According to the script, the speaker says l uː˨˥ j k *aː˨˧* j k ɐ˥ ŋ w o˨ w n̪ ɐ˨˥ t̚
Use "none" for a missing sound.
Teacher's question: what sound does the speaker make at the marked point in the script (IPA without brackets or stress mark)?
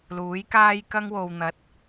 aː˥